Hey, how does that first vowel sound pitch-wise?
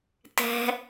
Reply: low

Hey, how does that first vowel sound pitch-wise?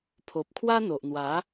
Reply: low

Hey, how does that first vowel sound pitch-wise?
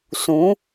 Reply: rising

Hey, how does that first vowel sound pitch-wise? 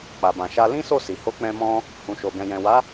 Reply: low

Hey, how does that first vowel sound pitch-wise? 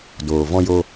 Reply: low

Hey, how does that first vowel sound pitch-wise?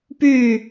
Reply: falling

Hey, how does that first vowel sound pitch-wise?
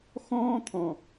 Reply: high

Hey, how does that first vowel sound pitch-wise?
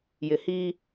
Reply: low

